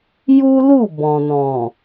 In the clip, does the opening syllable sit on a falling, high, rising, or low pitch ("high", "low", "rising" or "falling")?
high